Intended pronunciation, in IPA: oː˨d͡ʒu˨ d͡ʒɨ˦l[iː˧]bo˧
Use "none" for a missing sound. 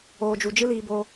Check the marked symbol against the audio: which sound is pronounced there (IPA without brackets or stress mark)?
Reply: iː˧